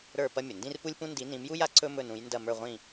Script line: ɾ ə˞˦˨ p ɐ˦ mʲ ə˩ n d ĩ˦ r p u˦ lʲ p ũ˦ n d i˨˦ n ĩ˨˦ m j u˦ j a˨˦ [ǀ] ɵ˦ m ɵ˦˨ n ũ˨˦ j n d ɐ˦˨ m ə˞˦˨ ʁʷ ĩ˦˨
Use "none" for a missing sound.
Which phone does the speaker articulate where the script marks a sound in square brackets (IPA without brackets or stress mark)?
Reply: ǀ